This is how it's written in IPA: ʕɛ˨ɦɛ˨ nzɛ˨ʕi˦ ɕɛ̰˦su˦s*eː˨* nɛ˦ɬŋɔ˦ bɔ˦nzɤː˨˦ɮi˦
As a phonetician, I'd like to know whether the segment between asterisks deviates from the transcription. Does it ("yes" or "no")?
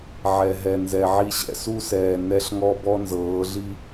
yes